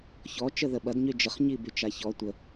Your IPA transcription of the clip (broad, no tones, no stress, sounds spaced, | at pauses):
ç ɔ t͡ʃ ə ð ə ɓ ɐ d ɲ y d͡ʒ ə χ ɲ i b y t͡ʃ a ç ɔ tʷ ə